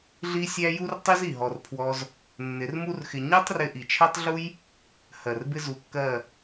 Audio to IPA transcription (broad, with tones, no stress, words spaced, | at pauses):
ɮi˦sʲæ˦ ju˦rtˤi˦z i˨ɦɔ˧r pʰwɔ˧z | nːɪ˨˦rmu˦rxɪ˧ ɲɜ˦tˤrɪ˧ ʔi˨t͡ʃʰɜ˦tˤɮu˦j | hɜ˨rbɪ˦ zu˧kːɜ˦˨